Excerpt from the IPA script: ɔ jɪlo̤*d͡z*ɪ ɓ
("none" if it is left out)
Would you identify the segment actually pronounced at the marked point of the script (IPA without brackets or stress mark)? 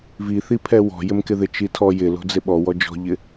d͡z